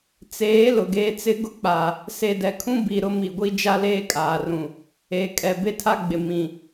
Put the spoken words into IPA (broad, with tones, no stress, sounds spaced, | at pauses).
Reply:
t͡s eː˨˦ l ʊ˨ ɡ eː˦ t͡s ɪ˦ ɡ ʊ˦ k͡p a˨ | s e˨ d ɛ˨ kʰ ũ˦ b i˨ ɾ ʊ˦ m i˨ ɡʷ i˦ d͡ʒ a˦ l eː˦ kʼ aː˨ r ũ˨ | e˨ kʼ ɛ˨ b e˦ tʰ a˦ ɡ͡b ɪ˨ m ĩ˨